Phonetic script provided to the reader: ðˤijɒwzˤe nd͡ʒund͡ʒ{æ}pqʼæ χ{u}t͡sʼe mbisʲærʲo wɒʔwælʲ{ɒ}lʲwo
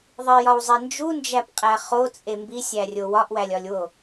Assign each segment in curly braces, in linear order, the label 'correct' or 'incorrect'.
correct, incorrect, correct

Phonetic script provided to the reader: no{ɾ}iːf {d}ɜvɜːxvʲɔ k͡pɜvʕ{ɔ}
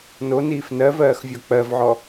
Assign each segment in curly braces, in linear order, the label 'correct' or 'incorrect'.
incorrect, incorrect, correct

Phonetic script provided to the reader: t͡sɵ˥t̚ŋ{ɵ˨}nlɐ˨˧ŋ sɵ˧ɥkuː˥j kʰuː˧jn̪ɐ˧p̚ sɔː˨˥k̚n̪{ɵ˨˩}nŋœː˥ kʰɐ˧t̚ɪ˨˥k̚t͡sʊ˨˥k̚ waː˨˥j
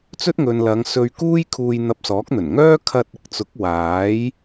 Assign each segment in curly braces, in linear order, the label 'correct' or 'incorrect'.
correct, correct

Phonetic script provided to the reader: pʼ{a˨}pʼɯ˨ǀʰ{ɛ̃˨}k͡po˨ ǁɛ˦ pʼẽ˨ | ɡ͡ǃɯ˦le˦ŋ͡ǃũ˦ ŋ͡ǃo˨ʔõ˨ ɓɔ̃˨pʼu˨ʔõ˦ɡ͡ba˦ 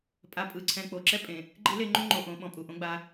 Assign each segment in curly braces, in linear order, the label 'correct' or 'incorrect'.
correct, correct

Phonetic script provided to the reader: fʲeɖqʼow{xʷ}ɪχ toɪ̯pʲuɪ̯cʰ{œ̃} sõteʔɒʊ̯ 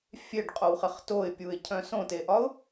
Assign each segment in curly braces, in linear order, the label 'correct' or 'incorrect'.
incorrect, correct

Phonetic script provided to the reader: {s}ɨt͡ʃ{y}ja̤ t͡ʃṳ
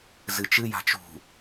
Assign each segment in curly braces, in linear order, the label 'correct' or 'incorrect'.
incorrect, incorrect

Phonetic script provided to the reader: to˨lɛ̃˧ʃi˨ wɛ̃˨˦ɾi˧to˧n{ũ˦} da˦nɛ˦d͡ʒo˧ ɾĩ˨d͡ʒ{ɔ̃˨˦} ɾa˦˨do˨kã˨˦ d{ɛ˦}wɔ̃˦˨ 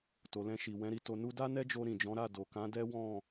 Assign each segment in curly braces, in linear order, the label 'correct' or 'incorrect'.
incorrect, correct, correct

